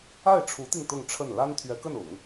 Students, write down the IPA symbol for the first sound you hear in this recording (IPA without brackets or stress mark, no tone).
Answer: a